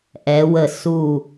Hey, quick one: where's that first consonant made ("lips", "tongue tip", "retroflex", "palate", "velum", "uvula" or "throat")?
throat